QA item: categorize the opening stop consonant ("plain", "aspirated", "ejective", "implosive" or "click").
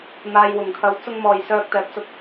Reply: aspirated